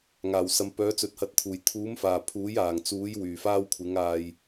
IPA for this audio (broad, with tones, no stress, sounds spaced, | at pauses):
ŋ aː˨˩ w s ɐ˨˧ m p œː˨˥ t͡s ɵ˨˥ t̚ h ɐ˨˥ t̚ t̪ʰ uː˨˩ j t̪ʰ uː˨˥ m f aː˨˩ pʰ uː˨˥ j aː˨˩ ŋ t͡s uː˨˥ j w yː˨˩ f aː˥ w kʷʰ ɪ˨˥ ŋ aː˧ j